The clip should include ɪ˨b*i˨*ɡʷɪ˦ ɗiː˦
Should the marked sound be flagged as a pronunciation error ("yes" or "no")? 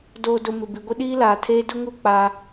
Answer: no